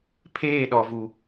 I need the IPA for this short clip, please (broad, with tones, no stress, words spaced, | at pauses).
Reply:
pʰeː˦˨ɗɔ˨vu˨